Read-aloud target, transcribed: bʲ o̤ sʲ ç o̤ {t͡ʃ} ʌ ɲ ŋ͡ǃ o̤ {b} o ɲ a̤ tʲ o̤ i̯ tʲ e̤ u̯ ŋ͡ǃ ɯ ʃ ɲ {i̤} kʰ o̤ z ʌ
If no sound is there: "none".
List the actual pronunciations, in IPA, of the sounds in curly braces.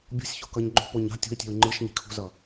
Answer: k, p, i̤

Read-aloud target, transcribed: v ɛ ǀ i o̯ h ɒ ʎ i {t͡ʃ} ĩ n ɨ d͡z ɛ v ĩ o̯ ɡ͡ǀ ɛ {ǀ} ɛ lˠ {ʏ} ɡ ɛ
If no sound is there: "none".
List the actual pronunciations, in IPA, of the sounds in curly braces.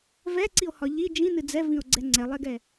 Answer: d͡ʒ, ŋ͡ǀ, ɛ

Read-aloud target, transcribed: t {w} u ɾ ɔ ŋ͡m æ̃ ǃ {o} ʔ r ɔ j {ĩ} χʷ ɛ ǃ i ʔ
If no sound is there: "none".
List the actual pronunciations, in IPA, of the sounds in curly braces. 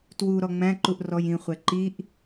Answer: w, u, ĩ

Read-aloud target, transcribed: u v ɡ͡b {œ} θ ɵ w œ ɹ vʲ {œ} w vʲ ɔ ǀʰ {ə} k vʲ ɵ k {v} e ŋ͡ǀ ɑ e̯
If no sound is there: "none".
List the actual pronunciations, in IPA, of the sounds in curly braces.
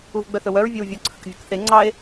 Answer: œ, œ, ə, θ

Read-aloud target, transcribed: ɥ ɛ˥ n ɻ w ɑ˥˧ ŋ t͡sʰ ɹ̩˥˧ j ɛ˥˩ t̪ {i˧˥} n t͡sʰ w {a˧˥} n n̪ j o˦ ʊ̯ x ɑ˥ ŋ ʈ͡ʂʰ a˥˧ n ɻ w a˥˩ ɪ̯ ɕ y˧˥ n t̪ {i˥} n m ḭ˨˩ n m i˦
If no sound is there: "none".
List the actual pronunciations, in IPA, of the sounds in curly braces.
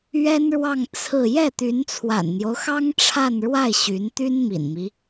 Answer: y˧˥, a̰˨˩, y˥

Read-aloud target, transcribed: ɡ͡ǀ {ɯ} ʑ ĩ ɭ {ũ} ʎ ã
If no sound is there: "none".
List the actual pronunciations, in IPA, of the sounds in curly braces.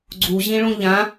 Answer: u, ũ

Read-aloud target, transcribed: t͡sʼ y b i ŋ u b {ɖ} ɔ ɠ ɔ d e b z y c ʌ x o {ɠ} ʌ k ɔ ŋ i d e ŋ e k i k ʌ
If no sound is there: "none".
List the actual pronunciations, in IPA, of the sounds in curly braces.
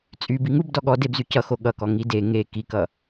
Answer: d, ɠ

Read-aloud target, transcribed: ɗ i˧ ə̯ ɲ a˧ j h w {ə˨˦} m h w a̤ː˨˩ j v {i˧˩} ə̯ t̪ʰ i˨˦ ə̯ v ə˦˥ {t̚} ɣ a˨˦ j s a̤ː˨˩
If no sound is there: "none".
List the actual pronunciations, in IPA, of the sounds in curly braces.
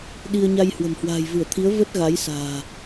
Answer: ə̤˨˩, ɨ˧˩, t̚

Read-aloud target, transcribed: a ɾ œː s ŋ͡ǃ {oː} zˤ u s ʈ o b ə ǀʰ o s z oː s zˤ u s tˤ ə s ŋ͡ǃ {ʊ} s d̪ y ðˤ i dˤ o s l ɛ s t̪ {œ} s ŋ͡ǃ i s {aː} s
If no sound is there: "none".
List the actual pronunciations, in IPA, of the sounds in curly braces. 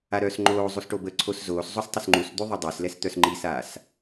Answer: oː, u, œ, aː

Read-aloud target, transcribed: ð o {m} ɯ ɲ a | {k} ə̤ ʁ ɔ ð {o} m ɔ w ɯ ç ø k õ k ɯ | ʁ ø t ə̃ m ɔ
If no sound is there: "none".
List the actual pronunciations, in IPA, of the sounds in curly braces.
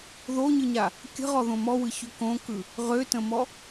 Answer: ɲ, kʲ, õ

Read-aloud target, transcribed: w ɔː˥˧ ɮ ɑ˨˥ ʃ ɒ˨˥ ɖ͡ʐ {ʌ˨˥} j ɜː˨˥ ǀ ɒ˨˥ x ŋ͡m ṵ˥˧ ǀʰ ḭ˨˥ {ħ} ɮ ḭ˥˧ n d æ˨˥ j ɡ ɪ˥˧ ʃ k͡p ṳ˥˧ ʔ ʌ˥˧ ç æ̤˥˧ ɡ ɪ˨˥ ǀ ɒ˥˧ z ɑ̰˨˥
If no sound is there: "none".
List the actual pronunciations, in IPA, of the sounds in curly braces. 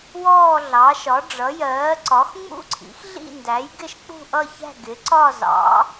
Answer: ʌ˨˥, x

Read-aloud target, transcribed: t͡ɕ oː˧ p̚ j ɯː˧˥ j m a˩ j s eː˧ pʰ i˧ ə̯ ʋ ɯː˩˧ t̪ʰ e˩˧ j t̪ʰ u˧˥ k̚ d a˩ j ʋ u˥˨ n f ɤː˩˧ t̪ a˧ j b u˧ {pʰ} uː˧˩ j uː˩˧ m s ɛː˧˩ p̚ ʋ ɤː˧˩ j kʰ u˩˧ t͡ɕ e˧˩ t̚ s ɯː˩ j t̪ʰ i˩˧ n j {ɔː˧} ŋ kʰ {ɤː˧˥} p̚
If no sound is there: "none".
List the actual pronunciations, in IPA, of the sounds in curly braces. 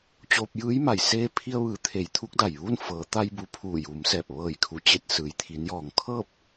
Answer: pʰ, ɔː˩, ɤː˥˨

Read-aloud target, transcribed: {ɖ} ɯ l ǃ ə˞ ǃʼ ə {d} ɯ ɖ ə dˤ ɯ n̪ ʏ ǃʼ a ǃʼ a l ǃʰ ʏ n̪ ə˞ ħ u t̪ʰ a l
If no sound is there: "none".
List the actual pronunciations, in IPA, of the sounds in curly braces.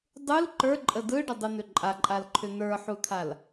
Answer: dˤ, d

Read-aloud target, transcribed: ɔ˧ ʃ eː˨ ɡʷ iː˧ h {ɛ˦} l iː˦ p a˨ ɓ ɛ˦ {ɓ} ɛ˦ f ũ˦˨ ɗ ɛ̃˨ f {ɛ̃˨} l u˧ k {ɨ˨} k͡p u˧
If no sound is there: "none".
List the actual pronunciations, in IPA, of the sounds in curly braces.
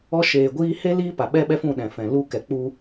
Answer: e˦, ɓ, ɛ̃˨, ɛ˨

